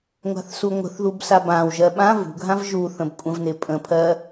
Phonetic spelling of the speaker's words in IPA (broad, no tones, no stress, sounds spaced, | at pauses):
ŋʷ a̤ θ s u ŋʷ ə̤ θ ð u b s a b ã w ʒ ɜ ɓ ã v ṳ ɡʱ ã v ʒ u θ ə̃ b kʷʼ ə̃ v n ɪ pʼ ə̃ pʰ ɜ